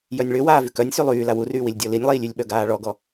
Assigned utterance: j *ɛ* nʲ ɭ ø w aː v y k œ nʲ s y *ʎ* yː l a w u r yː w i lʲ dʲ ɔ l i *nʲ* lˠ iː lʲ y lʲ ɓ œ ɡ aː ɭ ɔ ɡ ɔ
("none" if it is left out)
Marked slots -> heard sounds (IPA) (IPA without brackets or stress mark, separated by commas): œ, lˠ, nʲ